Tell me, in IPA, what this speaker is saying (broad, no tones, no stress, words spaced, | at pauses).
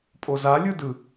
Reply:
pʼoza lʲɯdɯ